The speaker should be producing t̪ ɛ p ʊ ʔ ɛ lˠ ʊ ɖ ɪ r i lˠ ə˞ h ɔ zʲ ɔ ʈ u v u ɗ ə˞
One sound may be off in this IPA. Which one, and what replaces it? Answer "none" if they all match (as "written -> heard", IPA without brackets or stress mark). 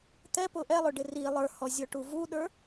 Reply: none